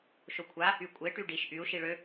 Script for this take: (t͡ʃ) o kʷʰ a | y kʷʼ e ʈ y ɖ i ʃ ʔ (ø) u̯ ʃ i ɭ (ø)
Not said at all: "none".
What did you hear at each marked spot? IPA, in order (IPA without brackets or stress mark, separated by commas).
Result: ʃ, y, ø